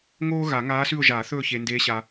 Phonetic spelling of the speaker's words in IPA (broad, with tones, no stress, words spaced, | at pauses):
ŋoː˥ɣa˨˩˦ŋaː˧˥sʉ˦˨ʊ̯ ʒaː˨˩˦θɵː˦˨ çe˨ ndeː˧˥ɕa˨